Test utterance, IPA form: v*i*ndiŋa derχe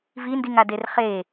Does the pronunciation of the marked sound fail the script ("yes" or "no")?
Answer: no